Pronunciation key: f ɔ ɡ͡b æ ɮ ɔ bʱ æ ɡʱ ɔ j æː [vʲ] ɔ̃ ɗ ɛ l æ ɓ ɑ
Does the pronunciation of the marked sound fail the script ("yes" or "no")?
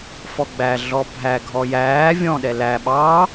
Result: no